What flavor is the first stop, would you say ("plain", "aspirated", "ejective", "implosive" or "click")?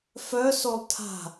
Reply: aspirated